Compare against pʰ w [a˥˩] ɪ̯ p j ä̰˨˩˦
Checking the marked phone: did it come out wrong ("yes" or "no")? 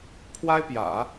yes